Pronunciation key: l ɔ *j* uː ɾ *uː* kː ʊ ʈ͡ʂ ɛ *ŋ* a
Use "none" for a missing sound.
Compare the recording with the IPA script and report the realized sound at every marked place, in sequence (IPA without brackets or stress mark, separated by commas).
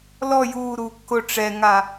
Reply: j, uː, ŋ